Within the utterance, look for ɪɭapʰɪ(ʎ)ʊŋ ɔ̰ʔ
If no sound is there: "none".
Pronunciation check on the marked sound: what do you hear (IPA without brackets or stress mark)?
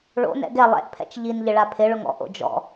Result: ɭ